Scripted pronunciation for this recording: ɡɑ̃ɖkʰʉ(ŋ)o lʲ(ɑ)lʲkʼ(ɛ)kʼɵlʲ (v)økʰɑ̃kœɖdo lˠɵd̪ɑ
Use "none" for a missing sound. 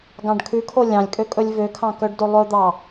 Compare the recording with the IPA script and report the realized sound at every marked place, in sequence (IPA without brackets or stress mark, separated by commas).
kʰ, ɑ̃, ø, v